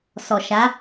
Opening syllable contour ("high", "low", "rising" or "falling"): low